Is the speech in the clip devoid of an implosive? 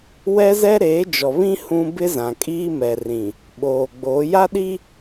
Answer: no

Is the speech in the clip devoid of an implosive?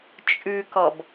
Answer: yes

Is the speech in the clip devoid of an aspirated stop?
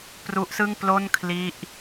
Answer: no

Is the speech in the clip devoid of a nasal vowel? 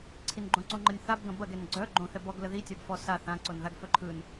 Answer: no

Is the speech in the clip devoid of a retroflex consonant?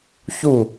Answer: yes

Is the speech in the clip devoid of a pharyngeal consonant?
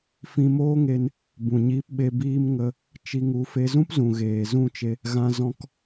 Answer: yes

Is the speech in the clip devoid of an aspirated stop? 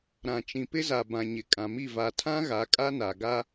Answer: no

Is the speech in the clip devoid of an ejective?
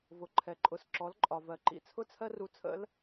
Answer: no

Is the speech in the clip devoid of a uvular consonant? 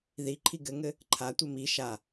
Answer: yes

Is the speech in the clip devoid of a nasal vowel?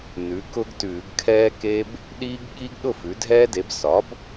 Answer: yes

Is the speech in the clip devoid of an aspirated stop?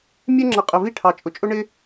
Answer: no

